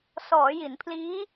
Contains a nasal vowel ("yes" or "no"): no